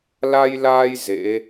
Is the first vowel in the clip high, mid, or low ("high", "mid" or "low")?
low